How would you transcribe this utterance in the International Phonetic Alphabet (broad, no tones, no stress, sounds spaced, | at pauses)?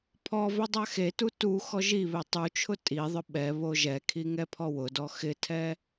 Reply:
pʰ ɔ v ɪ dˤ a x e t u t u x ɔ ʒ i β e tˤ u t͡ʃʰ ʊ tʼ i ðˤ ʊ ɓ ɛ β o ʒ ɛ kʰ i ŋ ɛ pʰ ɔ w ʊ d ɔ x ɪ tʰ ɛ